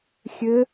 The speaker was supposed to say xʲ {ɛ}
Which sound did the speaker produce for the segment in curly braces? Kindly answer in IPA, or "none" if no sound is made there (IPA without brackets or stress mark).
ɘ